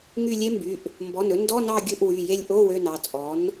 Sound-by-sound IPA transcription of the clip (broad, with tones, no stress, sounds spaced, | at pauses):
ŋ y˦˨ lʲ e˦˥ m b y˩˧˩ ʔ | m b ɔ˩˧˩ n ɵ˩˥ n d ɔ˧˥˧ n ɑ˦˨ ɡʲ ɵ˦˨ ʔ w y˩˧˩ j e˦˨ lʲ ʔ o˧˥˧ w ø˧˥˧ n ɑ˩˧˩ t͡sʼ ɔ˩˥ n